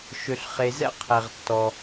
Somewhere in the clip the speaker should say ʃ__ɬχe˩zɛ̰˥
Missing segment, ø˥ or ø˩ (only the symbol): ø˩